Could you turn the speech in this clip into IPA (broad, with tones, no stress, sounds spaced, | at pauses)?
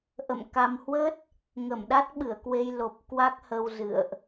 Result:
ʔ ə̰˧˨ m k a˧ m h w ə˦˥ t̚ | ŋ ə˧˩ m ɗ a˦˥ t̚ ɓ ɨ˧˩ ə̯ k w e˧ j l o˨˩ p̚ k w a˦˥ k̚ h ə˧ w z ɨ̰˧˨ ə̯ ʔ